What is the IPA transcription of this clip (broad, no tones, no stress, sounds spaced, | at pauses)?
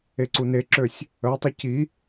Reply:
e ǀ u n e ǁ ø sʲ | œ tˤ ə c i